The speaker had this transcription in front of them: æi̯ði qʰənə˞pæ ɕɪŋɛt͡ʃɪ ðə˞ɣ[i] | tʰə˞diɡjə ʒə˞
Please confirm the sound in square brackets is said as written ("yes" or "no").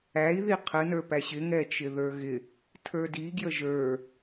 no